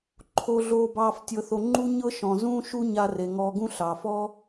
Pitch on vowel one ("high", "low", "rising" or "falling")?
low